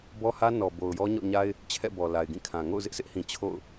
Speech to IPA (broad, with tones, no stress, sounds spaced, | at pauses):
b ɔ˦ h ä˦ n ɔ˨ b o˨ ʊ̯ j ɔ˦ ɲ ɔ̰˦˨ ɲ a˦ ɪ̯ | t͡ɕʰ ɛ̰˦˨ b ɔ˨ l a˨ ɪ̯ ɡ ĩ˦˨ kʰ ã˨ ŋ o̰˦˨ ʊ̯ z ɪ˦ ʔ sʰ ɪ˦ ʔ h ĩ˨ t͡ɕʰ o̰˦˨ ʊ̯